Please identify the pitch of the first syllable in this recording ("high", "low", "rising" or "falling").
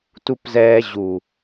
high